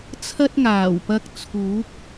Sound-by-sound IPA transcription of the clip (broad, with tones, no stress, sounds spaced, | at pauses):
t͡sʰ ɐ˥ t̚ ŋ aː˨˩ w p ɐ˧ k̚ t͡sʰ uː˨˥ k̚